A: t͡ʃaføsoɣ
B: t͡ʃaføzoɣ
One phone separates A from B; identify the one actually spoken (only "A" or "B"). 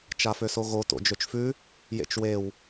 A